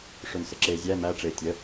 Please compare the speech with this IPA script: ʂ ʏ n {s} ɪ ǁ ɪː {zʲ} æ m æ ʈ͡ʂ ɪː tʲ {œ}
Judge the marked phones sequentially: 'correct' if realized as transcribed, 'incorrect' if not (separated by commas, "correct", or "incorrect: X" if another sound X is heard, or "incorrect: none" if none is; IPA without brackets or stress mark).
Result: correct, correct, incorrect: ə